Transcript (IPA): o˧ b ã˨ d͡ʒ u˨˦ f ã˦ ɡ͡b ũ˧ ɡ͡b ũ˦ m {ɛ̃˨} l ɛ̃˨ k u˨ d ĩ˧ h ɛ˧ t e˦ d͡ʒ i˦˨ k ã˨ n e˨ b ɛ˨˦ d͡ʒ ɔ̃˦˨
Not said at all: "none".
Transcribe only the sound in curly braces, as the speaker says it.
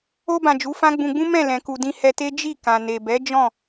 ɛ̃˦˨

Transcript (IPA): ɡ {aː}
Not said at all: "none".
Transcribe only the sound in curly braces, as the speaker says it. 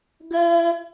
əː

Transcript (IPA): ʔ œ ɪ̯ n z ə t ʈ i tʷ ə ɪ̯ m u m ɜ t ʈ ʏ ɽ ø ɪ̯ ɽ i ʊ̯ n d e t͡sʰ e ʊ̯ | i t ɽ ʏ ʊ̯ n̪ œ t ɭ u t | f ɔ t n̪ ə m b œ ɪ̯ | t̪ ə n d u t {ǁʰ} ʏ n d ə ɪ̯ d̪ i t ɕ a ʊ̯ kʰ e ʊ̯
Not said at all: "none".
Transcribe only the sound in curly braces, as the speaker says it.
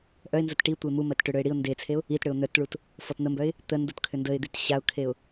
kʰ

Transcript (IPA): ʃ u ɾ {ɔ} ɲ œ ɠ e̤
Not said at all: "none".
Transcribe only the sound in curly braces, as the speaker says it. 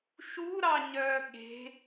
ɑ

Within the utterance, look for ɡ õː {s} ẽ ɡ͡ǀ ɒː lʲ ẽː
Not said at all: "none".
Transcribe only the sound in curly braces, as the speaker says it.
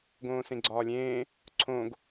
s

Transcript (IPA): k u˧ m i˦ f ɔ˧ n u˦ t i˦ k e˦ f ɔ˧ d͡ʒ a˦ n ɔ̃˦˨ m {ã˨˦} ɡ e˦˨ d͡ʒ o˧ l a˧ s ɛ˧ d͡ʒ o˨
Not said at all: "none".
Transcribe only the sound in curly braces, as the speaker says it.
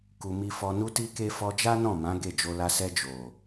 ã˨˦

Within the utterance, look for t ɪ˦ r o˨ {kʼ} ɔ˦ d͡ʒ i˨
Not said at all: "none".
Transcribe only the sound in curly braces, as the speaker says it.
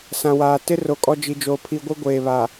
kʼ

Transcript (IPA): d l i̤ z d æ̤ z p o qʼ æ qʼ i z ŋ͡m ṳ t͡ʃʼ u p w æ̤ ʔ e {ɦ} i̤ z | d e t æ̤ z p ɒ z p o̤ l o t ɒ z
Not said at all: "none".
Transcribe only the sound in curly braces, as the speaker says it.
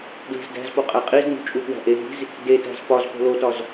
ɦ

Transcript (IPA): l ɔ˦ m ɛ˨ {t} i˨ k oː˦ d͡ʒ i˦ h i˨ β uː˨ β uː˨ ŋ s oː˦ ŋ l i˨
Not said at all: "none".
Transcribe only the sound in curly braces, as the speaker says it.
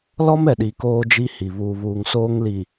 ɗ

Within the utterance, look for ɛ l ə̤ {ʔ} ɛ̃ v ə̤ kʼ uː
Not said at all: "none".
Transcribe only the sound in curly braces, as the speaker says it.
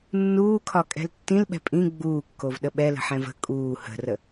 ħ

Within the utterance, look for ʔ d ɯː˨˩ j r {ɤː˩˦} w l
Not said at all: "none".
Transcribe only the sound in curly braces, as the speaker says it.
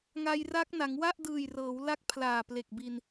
ɤː˩˦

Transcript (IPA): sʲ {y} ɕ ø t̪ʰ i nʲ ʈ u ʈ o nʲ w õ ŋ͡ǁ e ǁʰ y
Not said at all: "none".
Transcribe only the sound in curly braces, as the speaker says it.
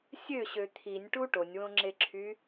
ø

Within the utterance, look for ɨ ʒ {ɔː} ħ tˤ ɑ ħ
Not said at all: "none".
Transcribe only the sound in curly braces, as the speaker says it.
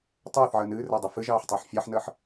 ɑː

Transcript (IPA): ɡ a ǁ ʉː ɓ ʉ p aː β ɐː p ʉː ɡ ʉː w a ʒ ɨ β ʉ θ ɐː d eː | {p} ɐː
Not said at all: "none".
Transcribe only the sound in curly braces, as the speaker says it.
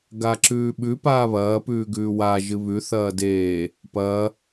p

